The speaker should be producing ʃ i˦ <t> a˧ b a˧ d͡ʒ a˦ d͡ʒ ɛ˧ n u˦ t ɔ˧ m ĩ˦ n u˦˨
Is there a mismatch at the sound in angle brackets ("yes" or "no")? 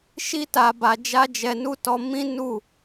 no